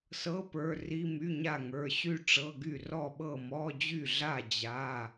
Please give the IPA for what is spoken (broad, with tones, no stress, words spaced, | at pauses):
sɤ˧˥˧pə˞˩˧˩ ri˧˥˧my˧˥˧ɲa˥˩ ŋə˞˩˧˩ɕy˥˩ʈ͡ʂɤ˧˥˧ɡy˥˩ rɔ˥˩ɓɤ˥˩ mɔ˧˥˧ d͡ʑy˥˩ɮa˥˩ d͡ʑa˩˧˩